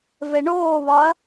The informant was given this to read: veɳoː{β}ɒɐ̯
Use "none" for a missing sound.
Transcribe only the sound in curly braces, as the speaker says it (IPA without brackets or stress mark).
β